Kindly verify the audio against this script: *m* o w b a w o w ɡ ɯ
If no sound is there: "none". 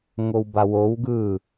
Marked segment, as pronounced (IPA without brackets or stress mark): ŋ